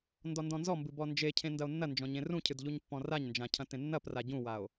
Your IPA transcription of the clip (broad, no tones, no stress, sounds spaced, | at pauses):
n d ɔ n d ɔ̃ n z ɔ m b ɨ b ɔ n d͡ʒ e cʰ ẽ n d ɐ o̯ nː ɐ n d͡ʒ ɔ̃ ɲ ẽ r ũ cʰ ɨ d ʎ u ɲ pː ɔ̃ r a ɲ n d͡ʒ ã cʰ ɐ̃ t ẽ nː ɐ p r a ɟ ũ w a o̯